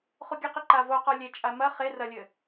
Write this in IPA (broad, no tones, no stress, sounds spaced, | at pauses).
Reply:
χ u ɡʲ ɘ q i ǃ a v o q ɔ lʲ e t͡ʃʼ a m ɐ χ e r ɐ lʲ ɘ